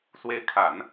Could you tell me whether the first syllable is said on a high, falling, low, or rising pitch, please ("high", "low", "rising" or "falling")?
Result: rising